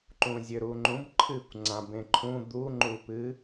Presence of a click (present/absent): present